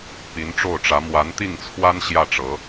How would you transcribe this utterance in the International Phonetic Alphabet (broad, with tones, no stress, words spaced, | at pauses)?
pi˧˥nʈ͡ʂo˥˩ʊ̯ʈ͡ʂä˧˥ mwa˧˥nt̪i˥˩ŋt͡sʰwa˥n ɕjä˥˩ʈ͡ʂɤ˧˥